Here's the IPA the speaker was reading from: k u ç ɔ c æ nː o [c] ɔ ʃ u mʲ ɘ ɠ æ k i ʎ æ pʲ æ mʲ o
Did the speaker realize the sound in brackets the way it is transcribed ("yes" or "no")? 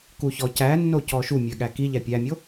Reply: yes